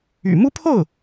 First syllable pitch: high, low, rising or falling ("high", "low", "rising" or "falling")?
low